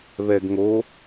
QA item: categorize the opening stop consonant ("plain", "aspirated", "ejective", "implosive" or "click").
plain